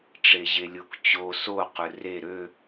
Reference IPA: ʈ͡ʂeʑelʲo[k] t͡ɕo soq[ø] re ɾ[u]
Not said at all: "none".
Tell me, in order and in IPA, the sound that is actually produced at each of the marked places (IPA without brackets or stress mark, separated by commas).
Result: k, ɵ, ø